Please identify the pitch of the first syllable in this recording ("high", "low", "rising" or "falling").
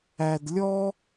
low